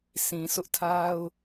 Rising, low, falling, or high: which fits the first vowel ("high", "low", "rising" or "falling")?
low